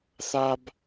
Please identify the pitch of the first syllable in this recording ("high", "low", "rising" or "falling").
high